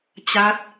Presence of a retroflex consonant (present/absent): absent